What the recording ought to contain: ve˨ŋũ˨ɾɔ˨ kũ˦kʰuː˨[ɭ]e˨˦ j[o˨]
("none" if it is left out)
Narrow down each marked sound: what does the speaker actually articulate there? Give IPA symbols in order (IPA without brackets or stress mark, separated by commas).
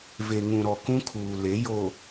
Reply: l, o˨